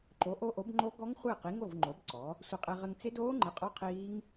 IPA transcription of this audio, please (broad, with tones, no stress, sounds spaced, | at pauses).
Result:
ǃ o˨˥ ʔ o˦˥ ʔ o˨˥ b ŋ͡ǃ o˦˥ ɡ ɔ˦˥ ŋ χʷ ɪː˥˨ q i˨˥ ŋ o˥˨ v ŋ͡ǃ o˨˥ b ǀ ɔ˨˥ | sʷ ɘ˧ qʼ e˧ ʁ ɘ˧ ŋ t͡s ɪ˦˥ d oː˦˥ ŋ͡ǃ ɪ˨˥ qʼ ɔ˦˥ qʰ iː˦˥ ŋ